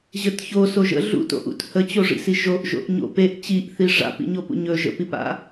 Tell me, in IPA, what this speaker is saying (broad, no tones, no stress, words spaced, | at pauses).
ʑət çoso ʒə̰ ɮṵto̰ʔṵt hət͡ɕoʐḭsi ʒoʔʒo̰ʔ ɲo̰ peʔ t͡ɕiʔθi ʐa̰pḭɲopṵ ɲɵ ʒə̰pipa̰